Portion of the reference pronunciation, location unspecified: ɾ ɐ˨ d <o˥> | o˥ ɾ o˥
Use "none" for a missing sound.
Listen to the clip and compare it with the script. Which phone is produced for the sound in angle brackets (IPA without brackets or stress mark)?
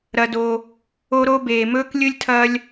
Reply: o˨